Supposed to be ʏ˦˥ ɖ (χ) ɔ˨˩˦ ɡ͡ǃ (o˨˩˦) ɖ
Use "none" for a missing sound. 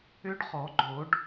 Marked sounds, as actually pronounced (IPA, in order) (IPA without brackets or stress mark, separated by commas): χ, o˨˩˦